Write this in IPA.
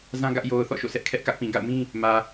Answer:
zã˦ ɡä˦ʔ jo˨ʊ̯ θɔ̰˦˨ʃo̰˦˨sʰɛ˦ʔ kʰɛ˦ʔkä˦ʔpĩ˨ ɡa̰˦˨ʊ̯mĩ˦ | mä˨

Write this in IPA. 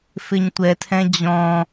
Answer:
fɪɲtʷɛtʰɛ̃ d͡ʑɔ̃

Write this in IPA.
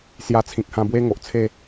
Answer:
sja˧t͡sʰĩ˨k̚hã˧ bwe˧ ŋo˨ʔt͡sʰe˥˧

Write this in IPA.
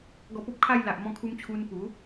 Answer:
ɡɔ˧po˦p̚kʰa˥˧j la˨ʔmɔ̃˧kʰu˧mt͡ɕʰu˧n pu˨˦

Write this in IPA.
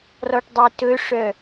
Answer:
rɔʈdˤitɵʂœ

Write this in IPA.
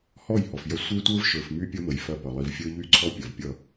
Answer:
hɔ˦˨jhɔ˨fjɐ˦ sʷə˞˦tʷə˞˦vʃə˞˨f my˦pʲʌ˦ mə˨jfɐ˦˨pʌ˨ lˠi˨vfʲə˞˦ʎy˦˨ǀʰɔ˦ pʲɐ˨vpʲʌ˦˨

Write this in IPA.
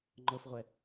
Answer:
ŋ͡ǃɤfʁʷɛ

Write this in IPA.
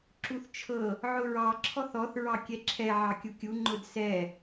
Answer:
ǁuθt͡ʃʰɤ | ʕʊɹɑ ǁʰɔθɔθ ɹɑkʲɛǁʰɛ ʕɑkʲukʲu ŋ͡ǃʊdsɛ

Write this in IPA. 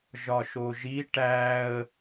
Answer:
ʒɒʃoʒi ʈæə̯

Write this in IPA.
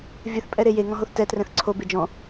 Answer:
vʲɘθpʼɛɾe jeŋɔ̃ɦoθ tɛtrɛ̃θ ǀʰobe d͡ʒɔ̃

